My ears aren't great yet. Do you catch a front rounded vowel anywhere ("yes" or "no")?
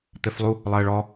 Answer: no